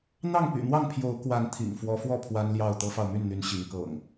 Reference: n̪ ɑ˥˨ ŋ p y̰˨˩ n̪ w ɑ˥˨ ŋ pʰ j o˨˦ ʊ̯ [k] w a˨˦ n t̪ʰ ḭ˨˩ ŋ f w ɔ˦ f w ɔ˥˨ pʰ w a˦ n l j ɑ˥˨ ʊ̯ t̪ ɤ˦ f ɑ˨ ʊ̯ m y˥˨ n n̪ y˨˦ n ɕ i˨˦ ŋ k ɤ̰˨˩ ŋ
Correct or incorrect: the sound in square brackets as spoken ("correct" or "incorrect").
correct